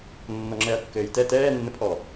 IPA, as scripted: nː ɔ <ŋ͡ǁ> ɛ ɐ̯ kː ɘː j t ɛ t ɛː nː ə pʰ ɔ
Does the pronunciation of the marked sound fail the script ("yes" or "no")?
no